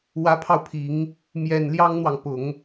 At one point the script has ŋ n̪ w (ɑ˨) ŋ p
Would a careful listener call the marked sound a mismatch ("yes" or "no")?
no